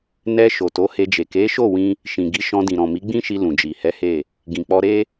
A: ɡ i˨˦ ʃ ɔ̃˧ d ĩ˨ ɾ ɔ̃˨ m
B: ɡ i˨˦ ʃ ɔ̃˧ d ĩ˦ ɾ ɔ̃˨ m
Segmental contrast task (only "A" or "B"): A